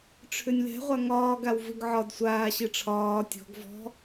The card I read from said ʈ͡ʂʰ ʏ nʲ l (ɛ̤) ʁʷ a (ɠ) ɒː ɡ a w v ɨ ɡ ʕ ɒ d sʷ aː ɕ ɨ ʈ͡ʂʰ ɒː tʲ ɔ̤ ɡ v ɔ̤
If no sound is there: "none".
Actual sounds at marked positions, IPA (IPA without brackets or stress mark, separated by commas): ɛ̤, ŋ